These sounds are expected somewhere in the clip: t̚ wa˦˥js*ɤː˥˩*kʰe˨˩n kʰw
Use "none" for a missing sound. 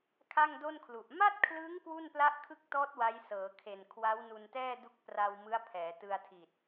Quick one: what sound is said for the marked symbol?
ɤː˩˦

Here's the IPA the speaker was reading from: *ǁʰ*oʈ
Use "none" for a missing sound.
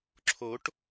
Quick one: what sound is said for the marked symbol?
ǁʰ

